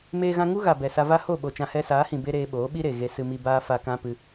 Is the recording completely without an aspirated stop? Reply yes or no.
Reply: yes